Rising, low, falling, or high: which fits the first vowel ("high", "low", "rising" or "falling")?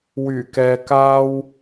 low